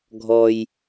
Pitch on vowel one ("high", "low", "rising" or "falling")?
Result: low